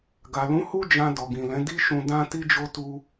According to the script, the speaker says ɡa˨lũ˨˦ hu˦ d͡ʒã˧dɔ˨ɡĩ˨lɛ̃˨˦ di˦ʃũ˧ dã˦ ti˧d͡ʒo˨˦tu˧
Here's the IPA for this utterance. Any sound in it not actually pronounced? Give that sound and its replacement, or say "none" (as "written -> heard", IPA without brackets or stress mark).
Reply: o˨˦ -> o˧